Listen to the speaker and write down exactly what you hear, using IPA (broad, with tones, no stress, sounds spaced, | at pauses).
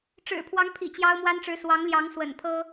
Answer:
ʈ͡ʂ ɻ̩˨˩ pʰ w ɑ˧˥ ŋ pʰ ḭ˨˩ t͡ɕ j ɑ˥ ʊ̯ m w a˥ n ʈ͡ʂ ɻ̩˧˥ s w ɑ˧˥ ŋ l j ɑ˧˥ ŋ s w ə̰˨˩ n pʰ ɤ˥